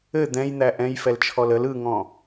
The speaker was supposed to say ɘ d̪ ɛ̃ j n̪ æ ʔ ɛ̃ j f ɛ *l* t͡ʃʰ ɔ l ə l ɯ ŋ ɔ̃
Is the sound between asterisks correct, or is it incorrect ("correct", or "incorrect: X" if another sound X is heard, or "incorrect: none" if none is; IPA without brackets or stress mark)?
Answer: correct